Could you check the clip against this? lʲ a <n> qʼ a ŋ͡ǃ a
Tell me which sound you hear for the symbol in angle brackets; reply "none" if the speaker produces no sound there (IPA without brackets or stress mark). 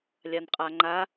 n